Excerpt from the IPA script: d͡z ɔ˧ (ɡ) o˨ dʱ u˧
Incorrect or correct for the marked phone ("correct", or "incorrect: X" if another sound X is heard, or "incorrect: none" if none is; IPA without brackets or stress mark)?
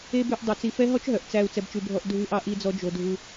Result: incorrect: d͡ʒ